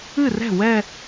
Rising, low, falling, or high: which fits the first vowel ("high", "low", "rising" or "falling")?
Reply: falling